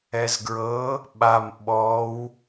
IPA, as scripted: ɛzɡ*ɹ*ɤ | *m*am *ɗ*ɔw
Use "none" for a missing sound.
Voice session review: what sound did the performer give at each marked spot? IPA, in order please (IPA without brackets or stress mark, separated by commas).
ɹ, ɓ, ɓ